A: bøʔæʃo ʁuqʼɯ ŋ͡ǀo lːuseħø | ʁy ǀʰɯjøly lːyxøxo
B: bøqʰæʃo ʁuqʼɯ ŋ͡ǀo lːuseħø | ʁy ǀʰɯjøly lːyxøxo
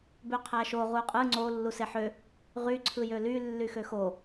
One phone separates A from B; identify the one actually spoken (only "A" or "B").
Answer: B